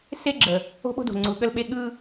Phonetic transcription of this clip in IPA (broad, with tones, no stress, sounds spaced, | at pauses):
s e˦ ɡ͡ǁ ə˨ | o̤˦ ɓ o̤˦ d o̤˨ ŋ͡ǀ u˨ ɠ ə˦ l ɓ e˦ ɠ ɯ˦